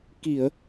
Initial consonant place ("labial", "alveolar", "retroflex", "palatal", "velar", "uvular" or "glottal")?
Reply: velar